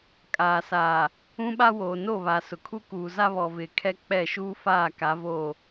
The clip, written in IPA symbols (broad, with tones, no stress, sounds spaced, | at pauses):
kʼ aː˨ s aː˨ | ũ˦ ɓ a˦ w oː˨ n o˦˨ β a˨ s ʊ˨ kʰ u˦ k uː˨ z a˦ β ɔ˨ v ɪ˨ kʰ ɛ˦ k͡p ɛ˦˨ ʃ uː˦ f aː˦˨ k a˨˦ v o˦˨